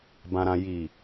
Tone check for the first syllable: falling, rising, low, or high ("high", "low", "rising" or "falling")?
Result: low